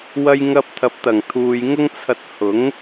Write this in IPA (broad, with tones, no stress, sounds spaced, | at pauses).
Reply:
w ɐ˧ j ŋ ɐ˧ p̚ t̪ʰ ɐ˨ p̚ t̪ ɐ˨˩ ŋ t̪ʰ uː˨ j ŋ ʊ˥ ŋ t͡sʰ ɐ˧ t̚ h ʊ˨˥ ŋ